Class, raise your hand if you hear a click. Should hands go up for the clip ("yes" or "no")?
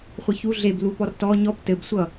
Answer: no